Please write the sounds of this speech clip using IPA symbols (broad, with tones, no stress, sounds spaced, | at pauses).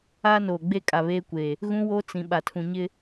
aː˦ n oː˨ ɡ͡b e˦ kʼ a˨ β eː˦ kʷ e˨ | ɣ ũ˦ w o˦ t͡s ĩ˨ ɓ a˨ tʰ ũ˨ ɲ ɪ˦